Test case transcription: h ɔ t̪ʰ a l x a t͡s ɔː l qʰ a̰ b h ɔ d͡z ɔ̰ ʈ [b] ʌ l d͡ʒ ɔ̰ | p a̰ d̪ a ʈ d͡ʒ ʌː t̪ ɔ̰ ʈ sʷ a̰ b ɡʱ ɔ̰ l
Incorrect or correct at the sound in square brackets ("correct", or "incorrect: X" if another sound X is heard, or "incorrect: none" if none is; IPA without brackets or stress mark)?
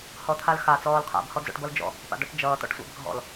correct